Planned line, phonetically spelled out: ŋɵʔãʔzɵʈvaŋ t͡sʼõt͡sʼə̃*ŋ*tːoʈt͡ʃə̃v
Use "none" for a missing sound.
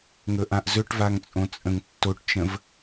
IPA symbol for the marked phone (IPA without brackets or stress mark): ŋ